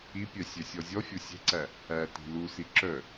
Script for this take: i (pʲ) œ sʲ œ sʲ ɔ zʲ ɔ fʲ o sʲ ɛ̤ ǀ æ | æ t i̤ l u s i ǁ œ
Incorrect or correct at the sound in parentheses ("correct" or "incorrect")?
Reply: correct